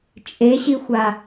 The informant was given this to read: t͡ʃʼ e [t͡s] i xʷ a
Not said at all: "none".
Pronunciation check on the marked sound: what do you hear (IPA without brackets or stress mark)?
ɕ